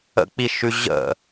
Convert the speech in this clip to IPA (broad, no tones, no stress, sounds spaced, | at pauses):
ə̰ k͡p i ʃ ʉ ʑ ə̰